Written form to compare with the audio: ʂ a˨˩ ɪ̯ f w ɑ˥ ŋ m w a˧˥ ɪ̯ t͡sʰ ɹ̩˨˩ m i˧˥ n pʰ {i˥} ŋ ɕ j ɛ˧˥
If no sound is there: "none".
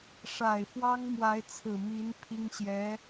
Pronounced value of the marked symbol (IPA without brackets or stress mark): i˥